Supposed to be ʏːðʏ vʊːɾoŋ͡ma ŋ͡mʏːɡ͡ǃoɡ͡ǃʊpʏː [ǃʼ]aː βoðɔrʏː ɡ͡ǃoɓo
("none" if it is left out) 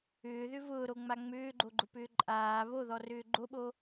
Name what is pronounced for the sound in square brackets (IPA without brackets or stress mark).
ǃʼ